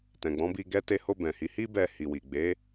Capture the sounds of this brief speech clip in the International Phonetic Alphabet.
t ɛ̃˨ ɡ͡b ɔ̃˨˦ b i˧ ɡ ɛ˧ t e˧ h o˧ b ɛ̃˨ h i˨˦ h i˦ b ɛ˧ h i˨ w i˨ ɡ͡b e˨˦

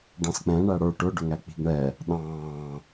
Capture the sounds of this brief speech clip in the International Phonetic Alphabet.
ɖ ɑ̃ s k͡p ɛ̃ ɳ æ ɽ ə˞ ʈ ʊ ɖ ʊ ŋ æ k͡p i̤ ɡ ɳ ɛ | ɗ ɑ̃ː

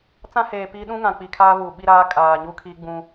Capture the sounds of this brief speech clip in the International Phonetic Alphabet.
t͡s ã˦ h eː˨ p iː˦ ɗ ũ˦ ŋ ã˨ k͡p i˨ kʰ aː˦ v uː˨ ɓ i˦ ɾ aː˦ kʼ aː˨ ɲ u˦ kʰ iː˦ ɡ͡b ũ˦

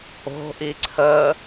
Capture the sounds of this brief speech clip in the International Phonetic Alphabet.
o̤ ʔ i ǀʰ ə

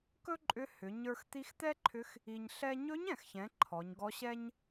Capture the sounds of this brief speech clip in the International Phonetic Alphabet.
k ɵ˥ ǃʼ ʏ˧˥ h ʏ˩˧ ɲ ə˞˧ x t̪ i˧˥ x t̪ ɛ˥ ǃʰ ʏ˧˥ x | i˧ ɲ ɬ ɛ˥ ɲ ɵ˧˥ ɲ ɛ̃˩ x ç ɛ̃˩˧ ǃʰ ɔ˩˧ ɲ ɡ ɔ˧˥ ɕ ɛ˥ ɲ

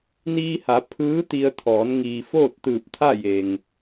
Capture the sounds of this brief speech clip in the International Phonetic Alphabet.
n iː˧ h a˩˧ pʰ ɯː˧˥ t̪ i˧ ə̯ t̪ʰ ɔː˩˧ n ŋ iː˩ f oː˥˨ t̚ t̪ ɯː˧˩ p̚ t̪ʰ a˥˨ j e˩ ŋ

